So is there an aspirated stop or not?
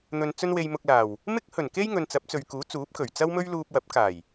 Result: no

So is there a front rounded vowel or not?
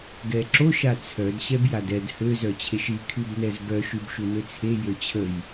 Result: yes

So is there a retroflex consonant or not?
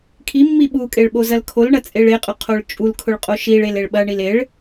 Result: yes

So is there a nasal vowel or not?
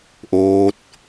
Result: no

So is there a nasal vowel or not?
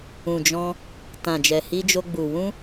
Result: yes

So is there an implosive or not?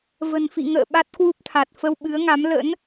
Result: yes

